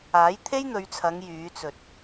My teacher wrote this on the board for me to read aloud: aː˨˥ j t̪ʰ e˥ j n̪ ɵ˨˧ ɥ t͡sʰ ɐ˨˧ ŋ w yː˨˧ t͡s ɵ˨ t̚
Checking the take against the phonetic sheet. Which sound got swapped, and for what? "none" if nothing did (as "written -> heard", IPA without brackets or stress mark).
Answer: w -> j